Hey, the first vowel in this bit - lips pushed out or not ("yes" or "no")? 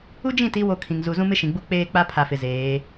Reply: yes